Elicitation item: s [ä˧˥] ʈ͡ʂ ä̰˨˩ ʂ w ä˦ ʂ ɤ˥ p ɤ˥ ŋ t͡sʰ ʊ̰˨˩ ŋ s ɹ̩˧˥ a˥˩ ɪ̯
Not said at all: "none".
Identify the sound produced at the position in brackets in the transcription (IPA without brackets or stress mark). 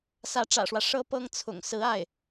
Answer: ä˧˥